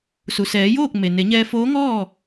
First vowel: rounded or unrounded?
rounded